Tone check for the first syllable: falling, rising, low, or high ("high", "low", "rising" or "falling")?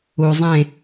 low